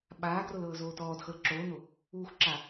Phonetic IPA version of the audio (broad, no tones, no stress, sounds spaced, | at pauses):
ɓ aː ɡ r o l ɤː z oː t ɔː d x ɤ l ǁ oː n o | uː x ǁ a